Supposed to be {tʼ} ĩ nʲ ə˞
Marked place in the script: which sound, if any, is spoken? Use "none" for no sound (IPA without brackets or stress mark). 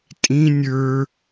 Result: tʼ